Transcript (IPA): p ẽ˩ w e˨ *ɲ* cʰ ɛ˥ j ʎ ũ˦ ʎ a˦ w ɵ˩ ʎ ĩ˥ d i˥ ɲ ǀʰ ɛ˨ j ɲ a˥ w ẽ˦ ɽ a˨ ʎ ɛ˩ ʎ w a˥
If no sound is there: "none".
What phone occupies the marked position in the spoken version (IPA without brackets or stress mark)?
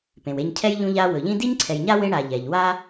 ɲ